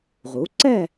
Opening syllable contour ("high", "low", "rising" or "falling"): rising